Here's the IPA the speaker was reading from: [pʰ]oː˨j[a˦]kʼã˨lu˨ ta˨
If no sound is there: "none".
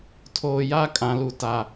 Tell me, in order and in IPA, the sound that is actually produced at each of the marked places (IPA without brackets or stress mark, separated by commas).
tʰ, a˦